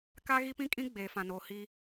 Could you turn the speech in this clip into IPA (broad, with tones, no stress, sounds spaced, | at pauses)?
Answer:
k a˦ ɣ i˦ p ĩ˦ kʼ ĩ˦ ɡ͡b eː˨ f ã˨ n oː˨ h i˦